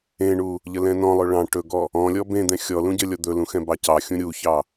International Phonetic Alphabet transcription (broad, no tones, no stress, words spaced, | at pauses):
ẽɳu | ʎəlɛ̃nɔ̃lˠɵ ɭɑ̃ ʈɵɡɔ | ɔ̃lʲɔ bẽd̪ɛ̃ xʲɔ lũɟəlʲɔ d̪ɵlũ xɛ̃bɑcɑxʲũ ɾʲuçɑ